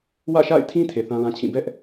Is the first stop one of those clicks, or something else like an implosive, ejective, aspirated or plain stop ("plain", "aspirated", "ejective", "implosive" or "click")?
aspirated